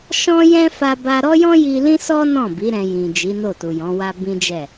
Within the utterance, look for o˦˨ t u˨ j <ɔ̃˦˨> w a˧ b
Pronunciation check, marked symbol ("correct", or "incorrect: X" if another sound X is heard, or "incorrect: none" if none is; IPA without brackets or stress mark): incorrect: ɔ̃˨˦